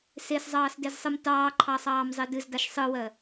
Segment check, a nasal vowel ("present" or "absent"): absent